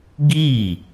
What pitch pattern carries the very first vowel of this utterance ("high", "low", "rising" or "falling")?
falling